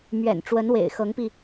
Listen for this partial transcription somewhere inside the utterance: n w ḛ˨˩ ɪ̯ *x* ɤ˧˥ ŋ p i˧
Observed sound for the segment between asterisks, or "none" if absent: x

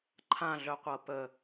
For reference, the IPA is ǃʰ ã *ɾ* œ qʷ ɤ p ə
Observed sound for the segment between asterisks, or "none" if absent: ɮ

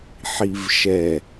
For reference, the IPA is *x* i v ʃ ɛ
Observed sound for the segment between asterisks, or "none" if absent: ħ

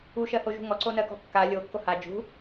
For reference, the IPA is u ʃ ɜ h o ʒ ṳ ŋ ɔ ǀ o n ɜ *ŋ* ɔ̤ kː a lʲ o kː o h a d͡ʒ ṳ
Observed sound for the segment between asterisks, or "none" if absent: k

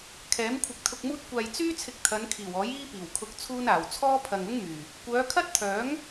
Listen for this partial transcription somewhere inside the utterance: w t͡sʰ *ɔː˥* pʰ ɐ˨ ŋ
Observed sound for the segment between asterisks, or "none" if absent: ɔː˥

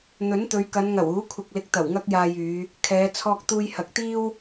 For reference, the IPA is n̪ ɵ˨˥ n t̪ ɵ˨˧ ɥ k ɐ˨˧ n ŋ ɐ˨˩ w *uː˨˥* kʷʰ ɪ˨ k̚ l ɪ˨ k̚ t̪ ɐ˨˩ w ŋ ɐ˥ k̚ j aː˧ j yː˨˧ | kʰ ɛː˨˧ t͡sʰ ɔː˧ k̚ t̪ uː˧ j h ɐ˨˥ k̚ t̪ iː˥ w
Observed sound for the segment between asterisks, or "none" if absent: uː˨˥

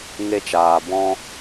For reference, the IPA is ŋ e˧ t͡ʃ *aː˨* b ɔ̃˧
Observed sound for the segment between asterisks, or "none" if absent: aː˨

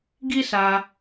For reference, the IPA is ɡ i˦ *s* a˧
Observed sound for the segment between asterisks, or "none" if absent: s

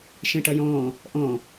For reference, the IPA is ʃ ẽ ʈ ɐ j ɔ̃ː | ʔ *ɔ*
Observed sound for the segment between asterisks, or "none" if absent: ɔ̃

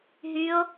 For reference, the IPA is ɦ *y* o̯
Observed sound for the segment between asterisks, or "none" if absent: y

